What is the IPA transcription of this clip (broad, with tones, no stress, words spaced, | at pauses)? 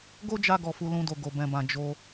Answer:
ɡo˦d͡ʒa˧ɡɔ˨ fu˧lũ˧do˨ ɡo˨ bɛ̃˨bã˨ d͡ʒo˧